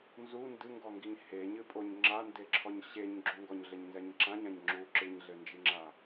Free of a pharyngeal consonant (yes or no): yes